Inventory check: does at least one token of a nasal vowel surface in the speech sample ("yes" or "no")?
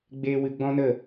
yes